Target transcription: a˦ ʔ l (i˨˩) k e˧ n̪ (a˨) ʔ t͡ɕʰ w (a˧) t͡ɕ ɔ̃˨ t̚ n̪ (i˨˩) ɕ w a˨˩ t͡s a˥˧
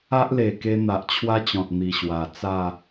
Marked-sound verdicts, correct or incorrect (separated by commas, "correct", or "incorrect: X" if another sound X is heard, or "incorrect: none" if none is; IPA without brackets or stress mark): incorrect: e˨˩, correct, incorrect: a˦, correct